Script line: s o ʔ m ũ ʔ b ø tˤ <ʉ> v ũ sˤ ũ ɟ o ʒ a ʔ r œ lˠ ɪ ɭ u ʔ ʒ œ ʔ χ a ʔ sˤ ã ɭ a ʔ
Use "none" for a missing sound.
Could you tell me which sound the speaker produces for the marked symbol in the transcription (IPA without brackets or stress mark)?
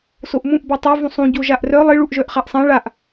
ø